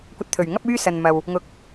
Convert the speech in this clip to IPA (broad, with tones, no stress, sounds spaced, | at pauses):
kʷ ɐ˨ t̚ t̪ʰ ɵ˨˩ ɥ ŋ ɐ˥ p̚ yː˥ s ɐ˨ n m ɐ˨ w | ŋ ʊ˨˥ k̚